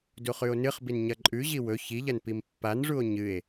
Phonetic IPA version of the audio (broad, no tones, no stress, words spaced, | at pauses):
duχʉo̯nɨχbin ɲɐǃʼʉʑi wɵ çiʎɐn pimpːanʐuo̯ ɲɨe̯